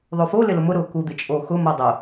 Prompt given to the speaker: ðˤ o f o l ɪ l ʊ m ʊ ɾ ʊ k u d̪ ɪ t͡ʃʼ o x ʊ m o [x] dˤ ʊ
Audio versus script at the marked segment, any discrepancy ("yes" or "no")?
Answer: yes